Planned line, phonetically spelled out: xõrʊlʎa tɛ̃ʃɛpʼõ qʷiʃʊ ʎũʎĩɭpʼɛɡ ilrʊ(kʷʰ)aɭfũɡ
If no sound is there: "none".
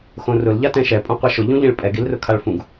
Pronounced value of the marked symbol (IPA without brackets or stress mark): kʰ